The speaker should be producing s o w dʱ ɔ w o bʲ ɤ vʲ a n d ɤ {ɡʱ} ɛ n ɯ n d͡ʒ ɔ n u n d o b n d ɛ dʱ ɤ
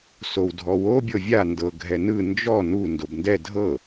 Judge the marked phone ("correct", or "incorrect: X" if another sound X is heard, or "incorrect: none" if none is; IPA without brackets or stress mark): correct